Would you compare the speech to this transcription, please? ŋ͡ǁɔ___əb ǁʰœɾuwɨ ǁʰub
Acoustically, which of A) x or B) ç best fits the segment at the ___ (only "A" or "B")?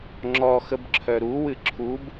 A